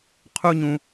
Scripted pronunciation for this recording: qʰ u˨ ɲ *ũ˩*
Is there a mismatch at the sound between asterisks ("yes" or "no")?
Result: no